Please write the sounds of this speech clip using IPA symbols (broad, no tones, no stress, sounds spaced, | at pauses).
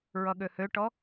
ɹ ʌ ɠ ø h ø ʈ ɔ